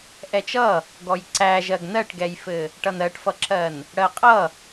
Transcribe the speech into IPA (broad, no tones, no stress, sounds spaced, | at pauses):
ʔ ɛ t͡ʃ ʌ | ɡ ɔ j ǀ æ ʒ ɜ ɡ n ɜ ʈ ɡ ɛ j f ɘ | ʈ ʌ n ɜ ʈ f ʌ ǁ ɜ n | ɽ ɜ qʼ ʌ